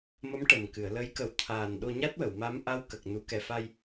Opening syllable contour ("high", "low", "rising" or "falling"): rising